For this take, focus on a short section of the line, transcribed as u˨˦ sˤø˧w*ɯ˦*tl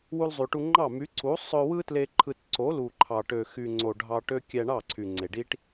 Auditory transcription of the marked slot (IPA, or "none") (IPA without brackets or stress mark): ɯ˦